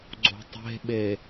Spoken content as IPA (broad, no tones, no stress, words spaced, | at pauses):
ɡ͡ǀo̤tˤe̤ɓe